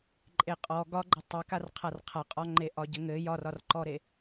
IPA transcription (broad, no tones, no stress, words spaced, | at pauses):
ǃʼeqʼɔ ɡɒɡ͡ǃɘ tˤekarqʰar qʰaqʼɒŋ͡ǃe ʔɒɟɘŋɘ jɒrɒrǃɔɾe